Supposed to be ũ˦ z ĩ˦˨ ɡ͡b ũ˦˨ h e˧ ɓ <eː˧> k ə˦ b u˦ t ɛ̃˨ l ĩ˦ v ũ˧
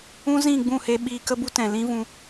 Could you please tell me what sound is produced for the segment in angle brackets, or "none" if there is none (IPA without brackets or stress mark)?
iː˧